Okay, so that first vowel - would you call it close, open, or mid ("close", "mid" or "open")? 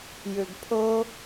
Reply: close